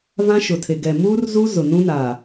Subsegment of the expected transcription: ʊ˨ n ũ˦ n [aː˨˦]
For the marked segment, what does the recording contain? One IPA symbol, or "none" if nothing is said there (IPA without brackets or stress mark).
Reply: aː˨